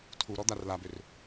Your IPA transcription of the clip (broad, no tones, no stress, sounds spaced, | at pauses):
tʰ u ɾ ɔ d̪ a r l a b ø r